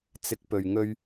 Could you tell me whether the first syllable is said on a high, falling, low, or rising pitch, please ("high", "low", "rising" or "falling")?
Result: low